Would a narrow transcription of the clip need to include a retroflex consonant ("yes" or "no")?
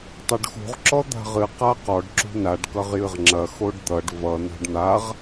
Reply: yes